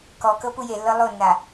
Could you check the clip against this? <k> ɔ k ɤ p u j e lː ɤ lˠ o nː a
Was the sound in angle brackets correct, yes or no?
yes